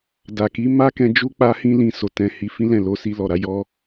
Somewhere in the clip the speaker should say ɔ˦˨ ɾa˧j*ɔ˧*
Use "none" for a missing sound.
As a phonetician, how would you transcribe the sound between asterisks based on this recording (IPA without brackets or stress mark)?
ɔ˦